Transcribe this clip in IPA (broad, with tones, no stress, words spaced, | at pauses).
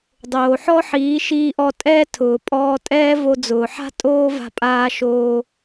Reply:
dˤoː˨ħɔ˦ħiː˨˦ ʃiː˧ʔɔ˧ tʼɛ˧ tʰʊː˨pʼɔː˧tʼɛː˦ vo˧d͡zʊː˨ħa̤˦ tʼoː˦va̤˧pʼaː˧ ʃoː˧